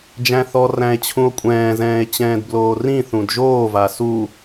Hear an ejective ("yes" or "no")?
yes